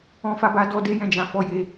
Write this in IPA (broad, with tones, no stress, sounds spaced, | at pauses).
ɔ̃˧ f a˧ b a˧ d ɔ˧ d e˧ j ɛ̃˧ d͡ʒ ã˨ f ɔ˨˦ j e˧